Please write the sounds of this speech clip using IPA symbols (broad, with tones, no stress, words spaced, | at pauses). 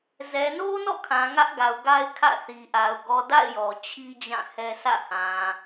zɛ˨no˦nɔ̰˦˨kʰã˨ ŋä˦ʔɡa˨ʊ̯ɡa˦ɪ̯ kʰä̰˦˨θi˨ʔa˨ʊ̯ ɡɔ˨da̰˦˨ɪ̯ jɔ˨t͡ɕʰi˦ d͡ʑã˦˨hɛ˦ sä̰˦˨ hã˨